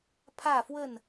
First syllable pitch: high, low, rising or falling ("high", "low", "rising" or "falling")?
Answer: falling